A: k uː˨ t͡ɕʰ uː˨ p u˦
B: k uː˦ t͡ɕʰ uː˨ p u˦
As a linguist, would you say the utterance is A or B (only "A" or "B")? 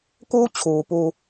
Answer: B